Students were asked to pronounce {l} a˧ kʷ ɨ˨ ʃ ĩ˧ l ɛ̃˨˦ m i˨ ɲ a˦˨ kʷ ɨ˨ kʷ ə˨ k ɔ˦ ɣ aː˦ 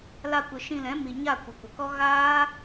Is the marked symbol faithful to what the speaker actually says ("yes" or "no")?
yes